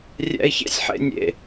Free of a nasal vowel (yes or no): yes